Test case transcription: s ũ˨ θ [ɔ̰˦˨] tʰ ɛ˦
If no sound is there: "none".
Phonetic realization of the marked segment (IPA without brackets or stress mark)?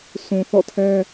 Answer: ɔ̰˦˨